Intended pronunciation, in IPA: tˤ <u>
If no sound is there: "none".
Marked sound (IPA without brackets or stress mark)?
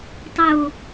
o